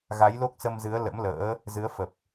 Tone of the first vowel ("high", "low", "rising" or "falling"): rising